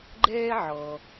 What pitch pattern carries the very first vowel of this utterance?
high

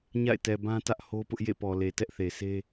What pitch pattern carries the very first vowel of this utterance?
falling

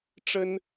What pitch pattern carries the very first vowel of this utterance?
high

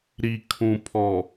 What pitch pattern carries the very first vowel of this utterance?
low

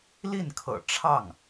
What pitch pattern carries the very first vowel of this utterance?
falling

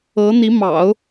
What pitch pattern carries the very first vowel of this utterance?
rising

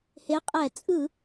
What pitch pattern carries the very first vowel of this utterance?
rising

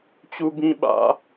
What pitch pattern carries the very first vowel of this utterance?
high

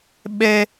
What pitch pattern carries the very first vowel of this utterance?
high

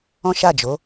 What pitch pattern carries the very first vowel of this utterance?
high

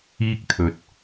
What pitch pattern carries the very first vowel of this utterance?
high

